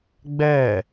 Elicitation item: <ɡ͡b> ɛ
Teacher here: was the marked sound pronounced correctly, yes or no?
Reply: yes